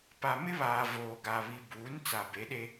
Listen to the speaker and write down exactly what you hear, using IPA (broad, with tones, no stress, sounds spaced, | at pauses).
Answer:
p a˨ m ɪ˦ β aː˨ v oː˨ ɡ a˨ β i˨ b uː˨˦ n t͡s a˨ b e˨˦ ɗ e˦